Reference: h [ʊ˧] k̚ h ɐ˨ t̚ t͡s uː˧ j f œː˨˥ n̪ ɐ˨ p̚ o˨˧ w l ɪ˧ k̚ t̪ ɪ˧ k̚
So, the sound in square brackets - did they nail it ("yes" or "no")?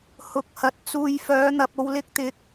no